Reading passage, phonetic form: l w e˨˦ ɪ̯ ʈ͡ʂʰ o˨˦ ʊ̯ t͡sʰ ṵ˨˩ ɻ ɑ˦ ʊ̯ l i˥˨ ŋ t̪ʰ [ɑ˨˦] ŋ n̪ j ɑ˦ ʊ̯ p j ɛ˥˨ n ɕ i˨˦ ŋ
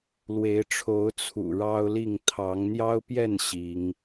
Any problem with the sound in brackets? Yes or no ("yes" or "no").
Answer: no